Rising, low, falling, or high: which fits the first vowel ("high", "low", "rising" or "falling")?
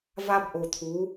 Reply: high